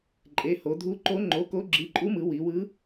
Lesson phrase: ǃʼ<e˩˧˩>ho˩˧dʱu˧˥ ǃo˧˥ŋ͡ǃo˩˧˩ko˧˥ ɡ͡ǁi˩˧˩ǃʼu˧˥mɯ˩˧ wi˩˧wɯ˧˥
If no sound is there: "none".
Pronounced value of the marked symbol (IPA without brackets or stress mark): e˩˧˩